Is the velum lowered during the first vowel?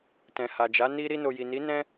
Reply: yes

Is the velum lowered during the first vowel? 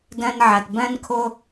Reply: yes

